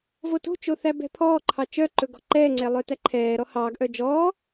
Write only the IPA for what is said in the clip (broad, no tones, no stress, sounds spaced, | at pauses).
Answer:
v o t o̤ t͡ʃ o θ æ b ɛ̤ pʰ ɔː ǃʰ ɑ t͡ʃ œ ǃ ɵ ɡ ɔ̤ ǃ ɛː ŋ͡ǀ ɛ lˠ œ t æ ǃʰ ɛː ɾ ɔ h ɑː ɡ ʔ œ d͡ʒ ɔː